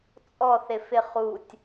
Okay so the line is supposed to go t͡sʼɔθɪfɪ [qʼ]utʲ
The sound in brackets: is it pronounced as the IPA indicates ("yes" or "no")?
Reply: no